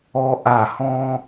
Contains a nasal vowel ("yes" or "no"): yes